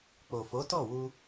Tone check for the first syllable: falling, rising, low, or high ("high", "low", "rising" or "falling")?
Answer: low